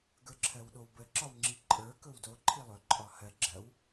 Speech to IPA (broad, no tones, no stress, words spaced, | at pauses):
ɡə˞ǁʰɜwɗowbə ǁɒwŋ͡ǁiǃʼə˞ kɵwdo ǃʰilˠɵ ǃʼɒhɜ ɡ͡ǁɜw